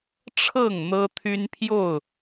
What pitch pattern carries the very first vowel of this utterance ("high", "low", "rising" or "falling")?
falling